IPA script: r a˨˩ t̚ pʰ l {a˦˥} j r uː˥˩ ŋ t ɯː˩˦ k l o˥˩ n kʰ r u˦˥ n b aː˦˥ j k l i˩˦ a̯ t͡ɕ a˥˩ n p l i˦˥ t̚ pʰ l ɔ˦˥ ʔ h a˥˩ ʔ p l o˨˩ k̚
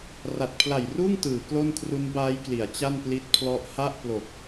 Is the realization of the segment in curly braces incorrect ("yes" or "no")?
yes